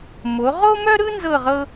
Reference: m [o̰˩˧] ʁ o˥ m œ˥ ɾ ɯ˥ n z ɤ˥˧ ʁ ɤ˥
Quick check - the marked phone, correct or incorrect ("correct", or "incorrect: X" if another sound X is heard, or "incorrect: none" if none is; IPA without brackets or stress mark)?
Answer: incorrect: o˩˧